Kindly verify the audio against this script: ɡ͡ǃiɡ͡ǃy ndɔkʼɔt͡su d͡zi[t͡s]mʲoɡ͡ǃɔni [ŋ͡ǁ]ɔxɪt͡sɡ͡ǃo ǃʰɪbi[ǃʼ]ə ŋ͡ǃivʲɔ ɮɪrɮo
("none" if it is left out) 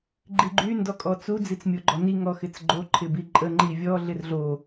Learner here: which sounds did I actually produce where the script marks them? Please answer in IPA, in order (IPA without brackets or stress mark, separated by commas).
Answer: t͡s, ŋ, ǃʼ